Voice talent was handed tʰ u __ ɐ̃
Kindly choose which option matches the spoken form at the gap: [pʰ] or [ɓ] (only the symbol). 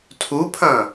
pʰ